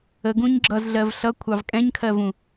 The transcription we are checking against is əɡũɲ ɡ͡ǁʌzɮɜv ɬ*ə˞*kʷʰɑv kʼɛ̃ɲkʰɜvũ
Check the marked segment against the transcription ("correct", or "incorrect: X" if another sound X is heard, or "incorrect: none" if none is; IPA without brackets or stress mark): incorrect: ʌ